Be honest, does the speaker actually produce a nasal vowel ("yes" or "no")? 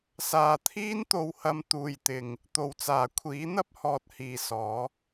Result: no